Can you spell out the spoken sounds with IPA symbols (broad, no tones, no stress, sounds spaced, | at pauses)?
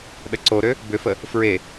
ɗ ə ǀ o ɾ ø | b ʏ f ə | f ɹ e